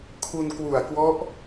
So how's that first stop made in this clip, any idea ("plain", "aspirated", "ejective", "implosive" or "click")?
aspirated